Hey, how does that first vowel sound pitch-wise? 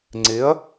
rising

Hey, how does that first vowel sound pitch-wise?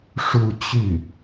falling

